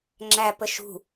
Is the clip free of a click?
no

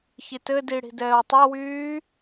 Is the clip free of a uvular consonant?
yes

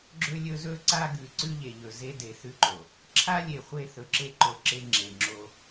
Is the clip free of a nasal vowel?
yes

